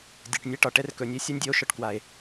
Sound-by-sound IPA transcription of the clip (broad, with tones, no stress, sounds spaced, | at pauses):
dʲ ɛ˨ ʈ nʲ ɛ˦ ʈ ɒ˨ ʈ ɛ˦ r k ɵ˨ nʲ e˦ sʲ a˦ nʲ dʲ e˧ o̯ ʃ ɒ˨ ʈ k w a˨ e̯